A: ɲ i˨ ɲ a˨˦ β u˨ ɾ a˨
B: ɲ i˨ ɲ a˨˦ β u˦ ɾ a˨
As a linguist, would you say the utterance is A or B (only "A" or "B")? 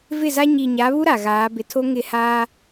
B